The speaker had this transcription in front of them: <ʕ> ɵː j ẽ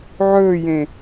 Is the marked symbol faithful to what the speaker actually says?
yes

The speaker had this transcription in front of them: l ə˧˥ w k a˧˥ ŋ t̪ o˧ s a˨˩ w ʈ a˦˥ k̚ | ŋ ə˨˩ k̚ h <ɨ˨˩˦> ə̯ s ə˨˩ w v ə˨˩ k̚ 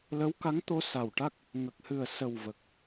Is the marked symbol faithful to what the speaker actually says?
no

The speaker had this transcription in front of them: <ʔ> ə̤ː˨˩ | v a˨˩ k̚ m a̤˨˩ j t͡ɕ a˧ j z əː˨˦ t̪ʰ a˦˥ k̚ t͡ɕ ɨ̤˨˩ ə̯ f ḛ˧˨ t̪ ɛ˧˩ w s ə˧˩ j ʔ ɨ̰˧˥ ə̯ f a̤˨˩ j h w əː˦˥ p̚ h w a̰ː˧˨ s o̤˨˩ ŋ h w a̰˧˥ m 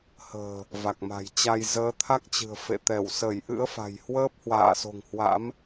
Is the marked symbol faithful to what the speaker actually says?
no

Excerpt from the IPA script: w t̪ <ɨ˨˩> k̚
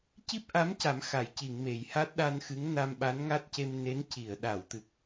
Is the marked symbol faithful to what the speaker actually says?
yes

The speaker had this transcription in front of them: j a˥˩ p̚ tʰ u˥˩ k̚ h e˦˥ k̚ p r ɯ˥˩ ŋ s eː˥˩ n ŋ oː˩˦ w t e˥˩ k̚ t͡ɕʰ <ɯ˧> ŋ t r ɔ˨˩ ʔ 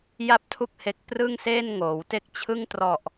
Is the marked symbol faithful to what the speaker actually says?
no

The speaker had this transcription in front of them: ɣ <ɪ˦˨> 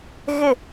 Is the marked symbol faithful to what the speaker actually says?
yes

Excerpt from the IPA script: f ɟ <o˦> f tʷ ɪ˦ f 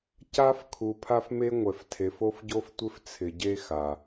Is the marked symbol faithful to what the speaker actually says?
yes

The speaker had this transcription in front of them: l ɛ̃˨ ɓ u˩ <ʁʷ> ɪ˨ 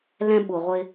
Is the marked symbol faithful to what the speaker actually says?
yes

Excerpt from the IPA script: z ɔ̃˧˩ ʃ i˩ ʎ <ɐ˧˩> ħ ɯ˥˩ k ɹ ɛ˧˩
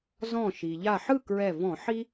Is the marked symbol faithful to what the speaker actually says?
no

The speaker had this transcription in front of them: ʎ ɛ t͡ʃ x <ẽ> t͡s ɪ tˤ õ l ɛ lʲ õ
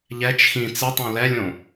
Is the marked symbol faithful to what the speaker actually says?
no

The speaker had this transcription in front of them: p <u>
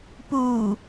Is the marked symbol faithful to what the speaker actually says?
no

